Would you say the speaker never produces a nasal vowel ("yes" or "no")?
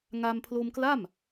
yes